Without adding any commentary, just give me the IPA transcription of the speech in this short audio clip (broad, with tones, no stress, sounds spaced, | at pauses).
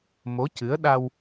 m o˧˥ c ɨ˧˥ ə̯ ɗ a˧ w